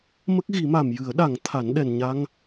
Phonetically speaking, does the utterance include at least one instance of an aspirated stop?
yes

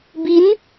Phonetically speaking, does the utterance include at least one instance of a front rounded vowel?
no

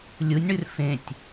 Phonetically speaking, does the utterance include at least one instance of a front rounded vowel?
no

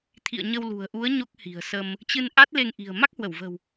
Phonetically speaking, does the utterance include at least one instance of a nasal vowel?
no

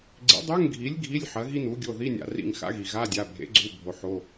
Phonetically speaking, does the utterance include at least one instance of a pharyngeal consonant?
yes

